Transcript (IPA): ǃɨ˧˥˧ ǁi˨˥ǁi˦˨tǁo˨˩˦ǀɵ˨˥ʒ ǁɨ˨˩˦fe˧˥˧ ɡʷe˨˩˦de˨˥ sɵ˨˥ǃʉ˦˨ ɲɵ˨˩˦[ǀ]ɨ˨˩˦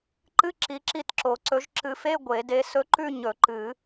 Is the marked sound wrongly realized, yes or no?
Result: yes